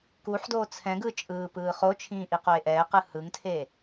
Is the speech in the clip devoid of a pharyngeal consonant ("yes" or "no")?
no